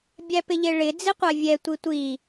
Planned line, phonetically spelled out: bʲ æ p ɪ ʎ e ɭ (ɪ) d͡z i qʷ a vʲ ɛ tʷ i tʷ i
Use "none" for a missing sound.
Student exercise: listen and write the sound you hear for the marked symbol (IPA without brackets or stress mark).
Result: ɪ